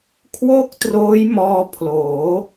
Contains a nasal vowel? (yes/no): no